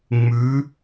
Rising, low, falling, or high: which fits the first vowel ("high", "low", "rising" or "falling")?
rising